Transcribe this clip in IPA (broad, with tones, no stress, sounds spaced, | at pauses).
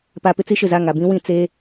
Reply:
p a˨ p ɪ˦ t͡s i˦ ʃ ɪ˨ z a˦˨ ŋ a˨ b ĩ˦ w ĩ˨ t͡s eː˦